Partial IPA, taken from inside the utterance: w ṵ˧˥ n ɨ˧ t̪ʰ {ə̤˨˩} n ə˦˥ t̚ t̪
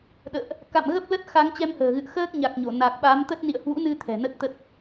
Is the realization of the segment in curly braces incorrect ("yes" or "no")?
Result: yes